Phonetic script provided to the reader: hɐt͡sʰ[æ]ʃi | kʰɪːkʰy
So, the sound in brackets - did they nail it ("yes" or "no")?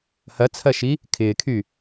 no